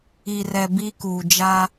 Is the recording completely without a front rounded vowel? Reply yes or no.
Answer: yes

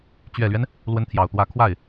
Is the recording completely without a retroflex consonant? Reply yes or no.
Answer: yes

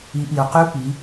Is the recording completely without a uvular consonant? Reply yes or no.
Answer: no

